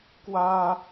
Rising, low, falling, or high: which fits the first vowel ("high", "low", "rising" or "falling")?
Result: high